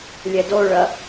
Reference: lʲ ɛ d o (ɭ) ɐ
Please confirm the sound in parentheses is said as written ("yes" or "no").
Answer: yes